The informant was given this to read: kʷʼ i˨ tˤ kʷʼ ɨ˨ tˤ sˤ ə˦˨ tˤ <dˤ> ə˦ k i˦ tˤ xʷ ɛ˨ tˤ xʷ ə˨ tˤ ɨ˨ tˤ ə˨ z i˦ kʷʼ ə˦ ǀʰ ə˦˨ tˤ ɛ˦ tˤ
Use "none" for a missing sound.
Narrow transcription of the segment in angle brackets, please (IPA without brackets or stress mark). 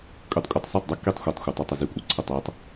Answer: dˤ